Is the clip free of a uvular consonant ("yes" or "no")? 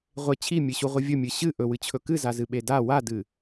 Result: no